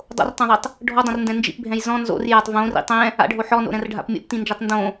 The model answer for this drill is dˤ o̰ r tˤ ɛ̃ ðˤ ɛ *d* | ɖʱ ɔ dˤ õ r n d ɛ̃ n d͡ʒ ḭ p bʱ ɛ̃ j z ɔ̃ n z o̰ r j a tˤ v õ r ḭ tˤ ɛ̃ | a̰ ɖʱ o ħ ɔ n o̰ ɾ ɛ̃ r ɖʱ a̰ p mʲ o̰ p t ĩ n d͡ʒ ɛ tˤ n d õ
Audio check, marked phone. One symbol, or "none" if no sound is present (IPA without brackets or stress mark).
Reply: tˤ